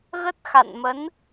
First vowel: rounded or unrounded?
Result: unrounded